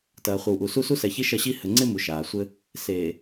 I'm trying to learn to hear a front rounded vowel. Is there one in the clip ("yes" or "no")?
no